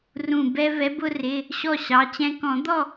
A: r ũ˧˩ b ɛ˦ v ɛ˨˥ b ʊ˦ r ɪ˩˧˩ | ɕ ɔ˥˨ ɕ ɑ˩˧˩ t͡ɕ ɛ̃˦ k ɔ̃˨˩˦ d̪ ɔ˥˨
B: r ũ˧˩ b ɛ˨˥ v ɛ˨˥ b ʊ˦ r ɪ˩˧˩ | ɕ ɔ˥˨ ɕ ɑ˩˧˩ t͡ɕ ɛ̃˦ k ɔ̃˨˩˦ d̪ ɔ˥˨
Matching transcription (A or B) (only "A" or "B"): A